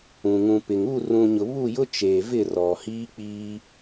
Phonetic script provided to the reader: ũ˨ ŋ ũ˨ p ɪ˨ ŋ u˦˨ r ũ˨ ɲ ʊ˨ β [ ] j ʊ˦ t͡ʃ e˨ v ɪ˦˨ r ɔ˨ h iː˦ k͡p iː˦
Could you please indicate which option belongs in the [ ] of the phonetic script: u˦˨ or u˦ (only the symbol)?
u˦˨